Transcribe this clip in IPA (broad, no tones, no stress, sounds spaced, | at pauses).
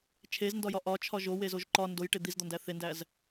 t͡ʃʰ e z n d ɒ j ɒ ʔ ɒ t͡ʃʰ ɒ ʒ o w e z o ʒ ǃ ɒ n d o j ʈ e d̪ i z d̪ ɒ n d æ θ e n d æ z